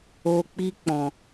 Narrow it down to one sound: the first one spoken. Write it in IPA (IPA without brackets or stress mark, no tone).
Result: o